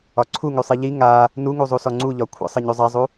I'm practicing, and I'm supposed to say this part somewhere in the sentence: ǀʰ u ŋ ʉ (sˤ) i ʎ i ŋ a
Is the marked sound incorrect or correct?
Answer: correct